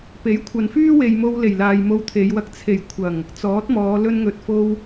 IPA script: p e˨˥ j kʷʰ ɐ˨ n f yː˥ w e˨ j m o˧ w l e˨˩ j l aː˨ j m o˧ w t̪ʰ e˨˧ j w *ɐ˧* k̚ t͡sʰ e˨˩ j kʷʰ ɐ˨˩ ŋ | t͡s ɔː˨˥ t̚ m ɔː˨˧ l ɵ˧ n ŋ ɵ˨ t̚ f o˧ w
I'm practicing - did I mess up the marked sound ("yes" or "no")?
no